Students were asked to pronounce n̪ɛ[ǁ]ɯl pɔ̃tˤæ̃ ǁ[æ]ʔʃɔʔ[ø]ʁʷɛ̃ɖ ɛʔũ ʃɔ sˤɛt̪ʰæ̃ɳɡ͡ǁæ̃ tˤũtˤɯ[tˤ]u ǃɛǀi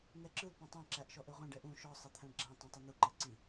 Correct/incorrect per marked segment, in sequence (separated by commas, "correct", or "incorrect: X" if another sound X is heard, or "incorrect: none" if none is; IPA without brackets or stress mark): correct, correct, correct, incorrect: n̪